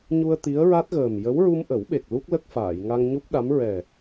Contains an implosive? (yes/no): yes